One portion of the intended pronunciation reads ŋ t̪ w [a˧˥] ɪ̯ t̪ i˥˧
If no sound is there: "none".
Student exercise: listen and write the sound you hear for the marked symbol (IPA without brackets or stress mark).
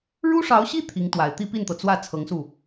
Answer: a˨˩